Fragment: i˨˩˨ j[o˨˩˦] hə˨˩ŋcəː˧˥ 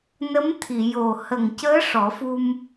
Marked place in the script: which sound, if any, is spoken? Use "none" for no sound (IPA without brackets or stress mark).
o˨˩